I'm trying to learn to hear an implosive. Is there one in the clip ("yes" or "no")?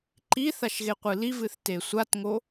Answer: no